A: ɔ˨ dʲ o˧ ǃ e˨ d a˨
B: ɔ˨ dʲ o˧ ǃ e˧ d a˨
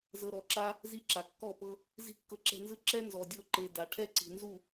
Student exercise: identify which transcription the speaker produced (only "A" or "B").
A